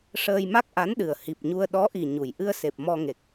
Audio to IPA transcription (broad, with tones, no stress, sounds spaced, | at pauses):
ʂ əː˧ j m a˦˥ k̚ ʔ a˧˥ n ɗ ɨ˨˩ ə̯ h i˨˩ p̚ ɲ u˧ ə̯ ɗ ɔ˧˥ ʔ i˨˩ ɲ u˨˩ j ʔ ɨ˧ ə̯ s e˨˩ p̚ m ɔ˧ ŋ e˨˩ k̚